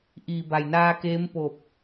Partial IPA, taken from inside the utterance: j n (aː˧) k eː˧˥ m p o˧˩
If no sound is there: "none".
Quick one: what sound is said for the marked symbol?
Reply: aː˧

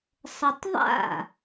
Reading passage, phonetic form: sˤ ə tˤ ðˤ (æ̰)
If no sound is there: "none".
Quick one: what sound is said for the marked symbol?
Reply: a̰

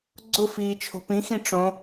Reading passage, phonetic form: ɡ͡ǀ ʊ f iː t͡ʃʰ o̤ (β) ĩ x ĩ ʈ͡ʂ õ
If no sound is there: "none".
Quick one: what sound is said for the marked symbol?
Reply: p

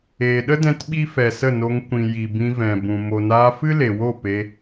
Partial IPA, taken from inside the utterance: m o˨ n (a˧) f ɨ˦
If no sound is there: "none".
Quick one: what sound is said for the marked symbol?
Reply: aː˧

